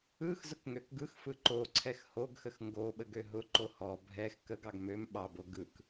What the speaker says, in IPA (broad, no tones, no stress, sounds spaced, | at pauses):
ɯ x z ʊ k ŋ ø k ɡ ɯ x f ɯ ǃ o ǀʰ ɛ x h o ɡ x ə x ŋ ɡ o ɓ ə ɡ ø ɦ ʊ ǃ o h ɔ bʱ ɛ x k ə ɡ ɑ ɡ m ø m ɓ ɑ b o ɡ ɯ k